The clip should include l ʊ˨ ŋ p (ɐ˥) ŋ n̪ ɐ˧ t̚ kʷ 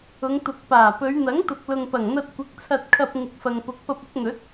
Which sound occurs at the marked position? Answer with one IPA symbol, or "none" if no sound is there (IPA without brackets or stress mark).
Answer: ɐ˨˩